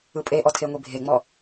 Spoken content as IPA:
ɯpʼeʔɔ tʰeŋʷibʱeŋ͡mɔ

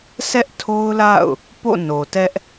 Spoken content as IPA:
sʰɛ˦ʔtʰo˦ʊ̯la̰˦˨ʊ̯ | po̰˦˨ no˨tɛ˦ʔ

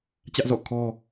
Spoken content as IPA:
t͡ɕä˦ʔzɔ̰˦˨ kʰɔ˦

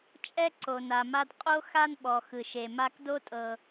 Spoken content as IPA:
t͡ʃʼɛ˥ǀo˩na˩ma˧d qʼo˥ xa˥nɓɔ˩ xɯ˩ʃe˩ ma˧kdo˥tʼɤ˩

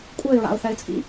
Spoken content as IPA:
kʷʼɛɪ̯ɹa̰ʊ̯θɛɪ̯t͡sʼḭ

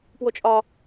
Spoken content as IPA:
pwot͡ʃʼɒ

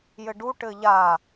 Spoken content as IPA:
jɘɖu ʈɘʎa

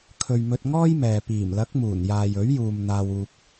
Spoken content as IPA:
kʰɵ˨ɥmɵ˧t̚ŋɔː˥jmɛː˨ piː˨˩mlɐ˨˥k̚muː˨˩n jaː˨jɵ˨˥ɥjuː˨m n̪aː˧wuː˧k̚

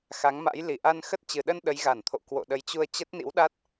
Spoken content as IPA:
xa˨˦ŋma̰˧˥j li˧˩ʔa˧nxə˦˥t̚ t͡ɕɨ˨˩ɗə˧n ɗə˨˦jɣa˧˩nt̪ʰo̰˧˨ kwo̰˧˨ɗə˨˦jt͡ɕu˧ə̯ t͡ɕə˦˥t̚nḭ˧˥wɗa˦˥t̚

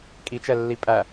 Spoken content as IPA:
kʼit͡ʃɛlːi pʼæ

